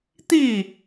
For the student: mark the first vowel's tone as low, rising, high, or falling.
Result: falling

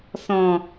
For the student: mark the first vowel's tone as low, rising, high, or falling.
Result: low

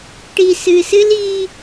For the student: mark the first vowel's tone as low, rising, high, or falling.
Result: low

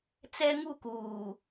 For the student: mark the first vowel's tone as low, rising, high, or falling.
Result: high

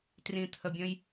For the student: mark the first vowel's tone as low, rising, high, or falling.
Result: low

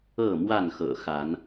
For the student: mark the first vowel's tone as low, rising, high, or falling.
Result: falling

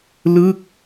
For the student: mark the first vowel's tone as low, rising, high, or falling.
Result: falling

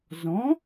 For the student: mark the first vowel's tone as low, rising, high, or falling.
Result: rising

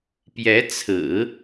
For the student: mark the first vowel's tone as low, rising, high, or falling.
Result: rising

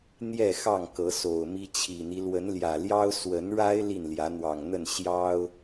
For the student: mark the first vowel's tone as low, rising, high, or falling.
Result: falling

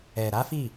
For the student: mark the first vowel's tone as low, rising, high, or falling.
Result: low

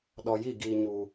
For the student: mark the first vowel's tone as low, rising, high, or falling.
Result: low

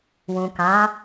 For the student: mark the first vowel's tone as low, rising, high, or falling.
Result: low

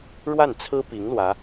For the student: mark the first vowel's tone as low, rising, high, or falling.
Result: falling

